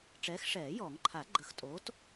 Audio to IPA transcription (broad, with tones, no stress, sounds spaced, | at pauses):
ʈ͡ʂ ɛː˨˥ x ʂ ɛː˨˩˦ j ɔ˨˩˦ ŋ ǃʰ a˨˩˦ ɡ͡ǃ ə˨˥ x tʼ oː˨˥ t